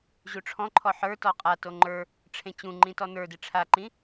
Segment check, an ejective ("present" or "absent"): present